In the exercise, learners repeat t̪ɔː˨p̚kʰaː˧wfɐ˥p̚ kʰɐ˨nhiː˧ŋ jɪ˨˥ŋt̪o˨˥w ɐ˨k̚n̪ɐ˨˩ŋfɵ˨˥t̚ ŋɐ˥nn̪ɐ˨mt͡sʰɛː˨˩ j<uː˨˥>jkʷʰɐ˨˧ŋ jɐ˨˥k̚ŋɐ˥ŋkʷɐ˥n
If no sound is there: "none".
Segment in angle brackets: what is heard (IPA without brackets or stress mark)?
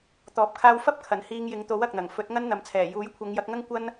uː˨˥